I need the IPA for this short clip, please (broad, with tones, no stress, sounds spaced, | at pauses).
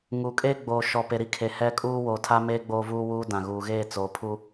ŋ u˨ kʼ e˦ ɡ͡b oː˨ ʃ ɔ˨ p e˨ ɾ i˦ kʰ e˨ h ɛ˦ kʼ uː˦ w oː˨ tʰ a˦ m eː˦ ɡ͡b oː˦ v uː˦ w uː˦ d ã˨ ɣ uː˨ ɣ eː˦˨ t͡s oː˨ pʰ u˦